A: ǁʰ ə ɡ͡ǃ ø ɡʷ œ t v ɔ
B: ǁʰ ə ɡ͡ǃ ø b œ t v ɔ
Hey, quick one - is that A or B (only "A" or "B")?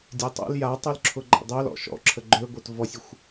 A